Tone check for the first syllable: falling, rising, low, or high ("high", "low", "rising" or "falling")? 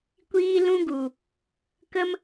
high